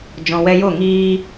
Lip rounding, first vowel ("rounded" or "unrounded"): rounded